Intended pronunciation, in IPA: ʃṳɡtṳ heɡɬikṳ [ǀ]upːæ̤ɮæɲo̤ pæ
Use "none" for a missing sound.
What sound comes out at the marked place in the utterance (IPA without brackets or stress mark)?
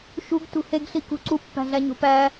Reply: ǀ